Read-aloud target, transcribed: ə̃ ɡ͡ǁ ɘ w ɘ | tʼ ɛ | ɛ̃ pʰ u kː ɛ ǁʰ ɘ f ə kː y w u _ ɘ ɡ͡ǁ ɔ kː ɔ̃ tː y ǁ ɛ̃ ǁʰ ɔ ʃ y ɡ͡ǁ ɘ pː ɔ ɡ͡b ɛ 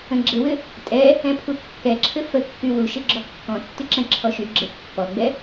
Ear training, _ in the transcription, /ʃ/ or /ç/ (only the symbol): ʃ